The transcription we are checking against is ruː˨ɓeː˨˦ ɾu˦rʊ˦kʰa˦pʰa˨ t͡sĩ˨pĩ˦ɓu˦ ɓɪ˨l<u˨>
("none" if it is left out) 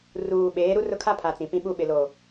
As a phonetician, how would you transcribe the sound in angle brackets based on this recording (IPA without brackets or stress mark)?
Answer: o˨